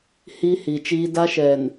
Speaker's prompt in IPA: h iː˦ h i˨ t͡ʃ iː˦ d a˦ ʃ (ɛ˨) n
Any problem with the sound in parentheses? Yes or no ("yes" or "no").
no